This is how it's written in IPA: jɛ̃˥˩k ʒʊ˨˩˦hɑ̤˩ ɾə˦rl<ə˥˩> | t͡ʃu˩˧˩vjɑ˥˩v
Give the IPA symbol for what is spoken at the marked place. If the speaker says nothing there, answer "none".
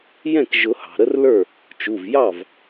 ə˞˥˩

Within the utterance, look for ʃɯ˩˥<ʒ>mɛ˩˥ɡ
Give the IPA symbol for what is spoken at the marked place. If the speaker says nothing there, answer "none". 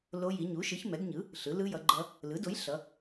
ç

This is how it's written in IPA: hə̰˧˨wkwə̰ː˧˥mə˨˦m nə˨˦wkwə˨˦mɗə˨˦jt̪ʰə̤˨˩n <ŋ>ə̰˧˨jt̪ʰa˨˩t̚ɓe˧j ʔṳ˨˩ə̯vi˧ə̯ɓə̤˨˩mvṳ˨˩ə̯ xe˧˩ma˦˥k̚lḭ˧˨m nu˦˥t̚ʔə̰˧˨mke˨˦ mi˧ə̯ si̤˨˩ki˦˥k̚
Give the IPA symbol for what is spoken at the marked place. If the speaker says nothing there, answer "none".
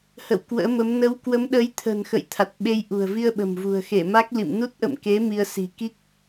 x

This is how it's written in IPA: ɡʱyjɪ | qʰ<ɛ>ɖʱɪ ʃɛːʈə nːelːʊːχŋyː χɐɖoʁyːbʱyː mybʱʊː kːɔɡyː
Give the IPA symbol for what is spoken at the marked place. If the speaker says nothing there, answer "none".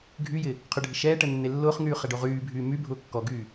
ʏ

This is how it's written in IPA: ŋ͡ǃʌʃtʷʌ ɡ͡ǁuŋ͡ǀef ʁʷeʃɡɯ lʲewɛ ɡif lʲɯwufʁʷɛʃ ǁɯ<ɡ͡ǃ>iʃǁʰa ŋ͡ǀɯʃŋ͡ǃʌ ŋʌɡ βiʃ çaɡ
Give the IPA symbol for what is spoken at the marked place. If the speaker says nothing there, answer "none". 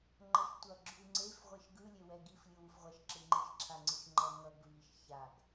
ŋ͡ǃ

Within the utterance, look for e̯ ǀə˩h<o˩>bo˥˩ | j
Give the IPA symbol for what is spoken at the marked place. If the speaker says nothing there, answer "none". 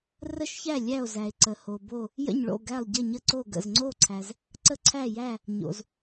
o˩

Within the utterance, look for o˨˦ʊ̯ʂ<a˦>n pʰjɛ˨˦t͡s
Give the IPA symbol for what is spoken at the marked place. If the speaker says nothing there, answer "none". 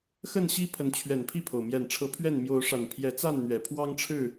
a˨˩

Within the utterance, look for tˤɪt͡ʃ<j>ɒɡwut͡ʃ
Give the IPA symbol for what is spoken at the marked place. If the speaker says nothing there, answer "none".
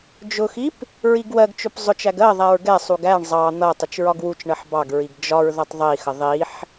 ɹ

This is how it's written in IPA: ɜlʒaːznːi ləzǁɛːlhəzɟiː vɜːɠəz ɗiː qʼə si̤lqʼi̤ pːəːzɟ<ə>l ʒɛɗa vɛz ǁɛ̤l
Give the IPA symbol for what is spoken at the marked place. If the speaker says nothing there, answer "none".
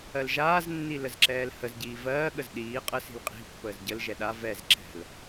ə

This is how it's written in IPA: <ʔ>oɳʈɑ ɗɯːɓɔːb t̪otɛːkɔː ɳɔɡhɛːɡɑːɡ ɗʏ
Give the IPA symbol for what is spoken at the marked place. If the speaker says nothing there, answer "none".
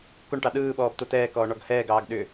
k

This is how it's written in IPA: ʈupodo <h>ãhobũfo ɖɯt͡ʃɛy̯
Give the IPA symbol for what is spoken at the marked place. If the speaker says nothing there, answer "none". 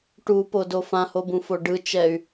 f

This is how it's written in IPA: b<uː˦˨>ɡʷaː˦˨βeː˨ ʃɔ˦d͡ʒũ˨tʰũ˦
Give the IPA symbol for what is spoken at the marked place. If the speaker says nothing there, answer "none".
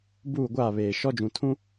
uː˦˨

